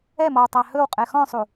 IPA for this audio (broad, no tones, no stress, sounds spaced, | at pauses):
ɛ m ɔ w tˤ æ h ɵ w qʼ ɛ x ɔ̃ sˤ u